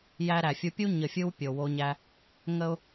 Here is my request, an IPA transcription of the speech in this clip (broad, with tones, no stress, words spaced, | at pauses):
jæ˧ɾæ˨fʲu˧pʲu˦ ɲə˨fʲɯ˧w pʲo˨wo˧ɲæ˧ | ŋə˧ʊ̯